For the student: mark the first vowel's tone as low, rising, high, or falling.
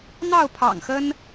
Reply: falling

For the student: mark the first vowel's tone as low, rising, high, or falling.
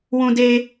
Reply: high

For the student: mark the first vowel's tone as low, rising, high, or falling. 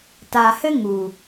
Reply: low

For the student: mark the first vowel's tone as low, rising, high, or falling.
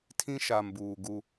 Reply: high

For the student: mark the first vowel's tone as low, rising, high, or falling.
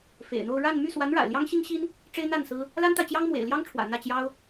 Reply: low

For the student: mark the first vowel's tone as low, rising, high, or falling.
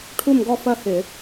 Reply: falling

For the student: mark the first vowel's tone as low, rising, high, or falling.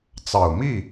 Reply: low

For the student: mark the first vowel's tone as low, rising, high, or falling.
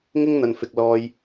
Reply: high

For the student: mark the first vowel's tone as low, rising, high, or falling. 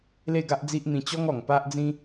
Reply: falling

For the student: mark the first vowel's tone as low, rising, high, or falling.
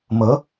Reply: rising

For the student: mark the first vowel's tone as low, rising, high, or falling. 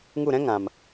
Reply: falling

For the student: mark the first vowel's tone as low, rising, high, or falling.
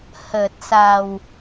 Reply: low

